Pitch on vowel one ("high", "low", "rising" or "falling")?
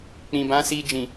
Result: low